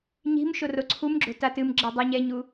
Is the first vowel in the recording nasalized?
no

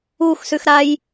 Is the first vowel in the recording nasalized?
no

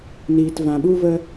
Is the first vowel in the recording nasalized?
no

